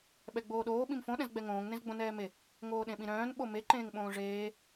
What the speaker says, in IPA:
ɓ ɛ ɡ͡b oː ɗ oː ɓ ĩ m f õ ɗ ɛ̃ z ɡ͡b ɛ ŋ õː ŋ n ẽ z ɡ͡b õ n ɛː m e | ŋ oː ɗ ẽ ɓ ĩ ɾ œ̃ː n ɓ o m e ǃ ẽː ŋ ɓ õː ʐ eː

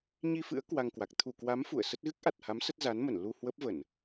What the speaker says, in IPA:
ɲ i˧ f ɨ̰˧˥ ə̯ k w a˧ ŋ k w a˨˩ k̚ t̪ʰ u˧˩ k w a˨˦ m f ṵ˧˨ ə̯ s ə˦˥ t̚ ɣ ɨ˦˥ k̚ ʔ a˨˩ t̚ h a˨˦ m s ə˦˥ t̚ z a˨˦ n m ə˧˩ n l u˧ h w ə˦˥ p̚ v ə˧˩˨ n

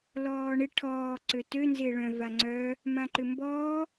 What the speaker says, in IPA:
l ɔː ɳ ɪ ʈʰ ɔː ǀ ø t ø n z ɪː ɭ œ̃ v a ŋ͡ǀ œ | m ã ǃ ʏ m b ɔː

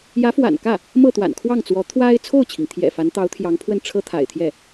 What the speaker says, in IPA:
j ä˧˥ f w a̰˨˩ n k ä˥˩ | m ɤ˥˩ t̪ w a̰˨˩ n kʰ w ɑ˥˩ ŋ t͡s w ɔ˧˥ t̪ʰ w a˥ ɪ̯ t͡sʰ o˥˩ ʊ̯ t͡ɕʰ i˩ ŋ t̪ʰ j ɛ̰˨˩ f a˧˥ n t̪ ɑ˧˥ ʊ̯ t̪ʰ j ɑ˧˥ ŋ pʰ w ə˥˩ n ʈ͡ʂʰ ɤ˥ t̪ʰ a̰˨˩ ɪ̯ t̪ʰ j ɛ˥˩

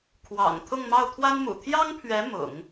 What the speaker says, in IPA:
kʰ w ɑ̰˨˩ ŋ t̪ʰ ʊ˥˧ ŋ m ɑ˥˩ ʊ̯ t̪ʰ w a˥ n m ṵ˨˩ t̪ʰ j ɑ˥ ŋ pʰ ɥ ɛ˧˥ m ʊ̰˨˩˦ ŋ

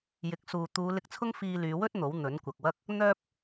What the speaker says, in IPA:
j ɪ˨˥ k̚ s uː˨ t̪ uː˨˧ l ɪ˧ k̚ t͡sʰ ʊ˥ ŋ f iː˧ l yː˨˧ w ɵ˥ t̚ n̪ o˨˥ w n̪ ɵ˨˥ n kʷ ɐ˨ k̚ w ɐ˥ k̚ | n̪ œː˧ p̚

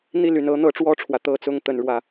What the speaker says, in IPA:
n̪ i˥˨ l y˨˩ n ɤ˦ n̪ ɤ˨˦ ʈ͡ʂ w ɔ˥˨ ʈ͡ʂʰ w ä˩ t̪ ɤ˥˨ t͡s ʊ˥˨ ŋ t̪ ə˨˩ n ɻ w ä˥˨

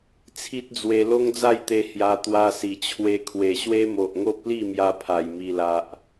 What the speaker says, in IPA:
t͡sʰ i˦ t̚ d͡z w e˧ l o˦ ŋ d͡z a˥˧ j t̪ e˧ h j a˧ t̪ w a˧ s i˨˩ t͡ɕʰ w e˧ kʰ w e˨˩ ɕ w e˦ m o˨ ʔ ŋ o˦ p̚ l i˥˧ m j a˧ pʰ a˨˩ j m i˨˩ l a˨ ʔ

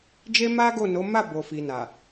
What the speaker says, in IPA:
d͡ʒ e˦ m a˦ ɡ o˦˨ n o˨˦ m a˦˨ b o˨ f i˨ n a˨

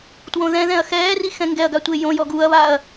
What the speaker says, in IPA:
t w õ ð ɛ̃ ð ɛ̃ ɐ̯ x ɛː r i x ɛ̃ ŋ ɡ ɛ ɐ̯ ɡ a tʷ e j õ j ɔ ɡ u ɐ̯ β a ɐ̯

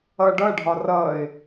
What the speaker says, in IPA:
ʌ ɖ ʌ ɖʱ ɒ r ʌ ɪ̯

